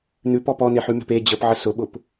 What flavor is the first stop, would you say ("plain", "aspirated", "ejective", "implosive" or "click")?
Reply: plain